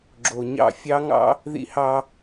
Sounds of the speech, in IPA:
ɡ͡ǁ o˨ ɲ ɑ̰˦˨ fʲ ɑ˦ ŋ ɑ̰˦ | ð ḭ˦ h ɑ˦

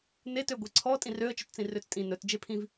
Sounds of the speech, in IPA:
n e t ø ɡʷ e ǀʰ ɔ tʼ ĩ r ø ə̯ t͡ʃ ɵ t t͡s ĩ r ø t͡s tʼ ĩ n ɵ t d͡ʒ e pʰ ĩ v

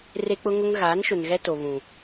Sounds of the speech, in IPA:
r e˦ k͡p ʊ˦ ŋ ʊ˦ ŋ ɣ aː˨˦ n ʃ ʊ˨ n ɣ ɛ˦ t o˨ β ũ˨

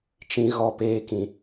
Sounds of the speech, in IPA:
t͡ʃ ĩ˨ ɣ ɔ˦˨ p eː˦ k ĩ˨

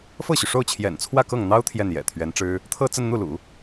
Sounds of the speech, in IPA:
f ɤ˥˩ ɕ y˩ ʂ o˥˩ ʊ̯ t͡ɕʰ j ɛ̰˨˩ n t͡sʰ w ä˥˧ k ɤ˥˩ ŋ n̪ ɑ˥ ʊ̯ t̪ʰ j ɛ˥˩ n j ɛ̰˨˩ t̪ʰ ɥ ɛ˧˥ n ʈ͡ʂ ɻ̩˥ | t̪ʰ ɤ˥˧ t͡s ə˥˧ n n̪ u˥˩ l ṵ˨˩˦

